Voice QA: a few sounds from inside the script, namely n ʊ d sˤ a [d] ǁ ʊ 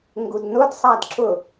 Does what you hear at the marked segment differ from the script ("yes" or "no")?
no